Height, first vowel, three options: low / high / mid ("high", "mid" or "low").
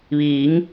high